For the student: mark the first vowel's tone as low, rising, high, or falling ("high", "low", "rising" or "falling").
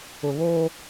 low